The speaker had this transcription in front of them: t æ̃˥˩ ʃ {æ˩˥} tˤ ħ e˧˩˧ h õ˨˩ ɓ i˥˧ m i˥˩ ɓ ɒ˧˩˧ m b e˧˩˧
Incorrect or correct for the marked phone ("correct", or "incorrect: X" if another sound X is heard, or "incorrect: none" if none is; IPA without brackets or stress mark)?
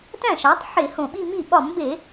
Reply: correct